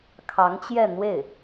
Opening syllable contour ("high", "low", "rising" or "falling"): rising